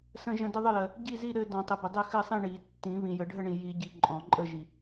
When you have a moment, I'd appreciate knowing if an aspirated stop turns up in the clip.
no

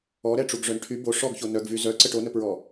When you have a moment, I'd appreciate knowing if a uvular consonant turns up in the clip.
no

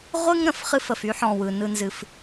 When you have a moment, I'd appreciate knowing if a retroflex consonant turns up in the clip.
no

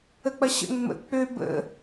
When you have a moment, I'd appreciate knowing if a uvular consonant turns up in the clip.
no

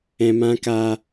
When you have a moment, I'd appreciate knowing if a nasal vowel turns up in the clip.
yes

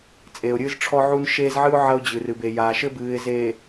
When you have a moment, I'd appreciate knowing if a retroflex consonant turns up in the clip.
yes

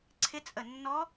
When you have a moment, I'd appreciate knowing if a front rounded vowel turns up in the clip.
no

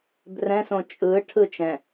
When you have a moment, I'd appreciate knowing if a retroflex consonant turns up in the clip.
yes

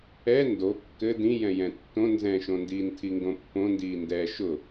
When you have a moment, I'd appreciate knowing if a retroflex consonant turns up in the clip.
no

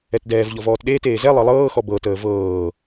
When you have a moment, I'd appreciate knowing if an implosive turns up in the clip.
yes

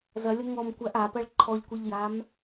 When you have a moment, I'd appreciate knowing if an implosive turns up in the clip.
no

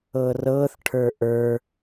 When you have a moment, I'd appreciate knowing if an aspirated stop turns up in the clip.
yes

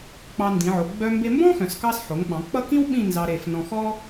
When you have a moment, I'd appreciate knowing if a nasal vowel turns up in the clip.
yes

